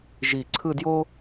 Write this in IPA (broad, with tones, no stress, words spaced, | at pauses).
ʒi˧˩ ǀʰɯ˥˧djo˥